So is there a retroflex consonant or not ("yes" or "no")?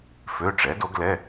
yes